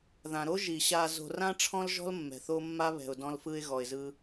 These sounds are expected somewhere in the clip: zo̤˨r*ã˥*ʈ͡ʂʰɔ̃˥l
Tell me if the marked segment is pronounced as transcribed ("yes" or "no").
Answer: yes